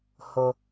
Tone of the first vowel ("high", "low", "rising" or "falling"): low